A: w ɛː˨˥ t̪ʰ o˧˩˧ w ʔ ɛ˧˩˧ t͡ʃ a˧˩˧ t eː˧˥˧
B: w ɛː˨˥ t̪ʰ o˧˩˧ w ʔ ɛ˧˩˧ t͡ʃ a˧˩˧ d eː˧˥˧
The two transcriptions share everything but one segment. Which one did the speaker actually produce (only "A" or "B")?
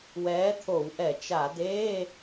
B